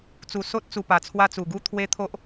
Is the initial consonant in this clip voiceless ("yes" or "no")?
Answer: yes